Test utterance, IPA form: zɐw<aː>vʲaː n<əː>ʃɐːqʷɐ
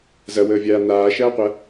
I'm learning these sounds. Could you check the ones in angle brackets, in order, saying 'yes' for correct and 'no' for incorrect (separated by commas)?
no, no